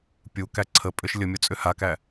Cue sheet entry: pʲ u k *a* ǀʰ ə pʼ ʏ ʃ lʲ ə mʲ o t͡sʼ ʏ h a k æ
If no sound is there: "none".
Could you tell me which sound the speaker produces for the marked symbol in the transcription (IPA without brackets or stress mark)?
æ